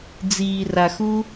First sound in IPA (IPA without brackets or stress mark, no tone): d͡z